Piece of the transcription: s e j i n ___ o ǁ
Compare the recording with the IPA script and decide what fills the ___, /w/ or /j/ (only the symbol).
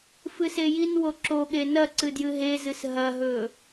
w